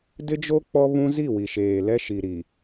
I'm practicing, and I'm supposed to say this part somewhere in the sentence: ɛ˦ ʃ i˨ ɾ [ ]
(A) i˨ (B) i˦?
A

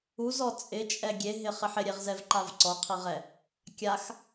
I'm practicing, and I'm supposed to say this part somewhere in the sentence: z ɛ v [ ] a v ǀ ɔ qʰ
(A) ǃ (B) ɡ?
A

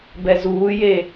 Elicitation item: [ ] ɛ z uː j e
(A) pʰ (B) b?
B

